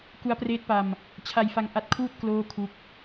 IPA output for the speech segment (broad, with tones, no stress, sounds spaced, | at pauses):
k u˦˥ a̯ p r eː˦˥ t̚ p a˧ m | t͡ɕʰ a˧ j f a˧ ŋ ʔ a˦˥ t̚ kʰ uː˥˩ t̚ k l oː˥˩ kʰ u˦˥ k̚